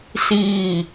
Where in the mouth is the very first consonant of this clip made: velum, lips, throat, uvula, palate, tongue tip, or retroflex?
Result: tongue tip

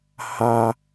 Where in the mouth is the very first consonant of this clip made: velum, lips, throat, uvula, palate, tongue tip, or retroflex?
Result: throat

